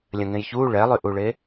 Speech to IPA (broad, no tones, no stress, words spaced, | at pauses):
lʲɐ̃ŋẽjçuː ɭɛlˠyʔuɭe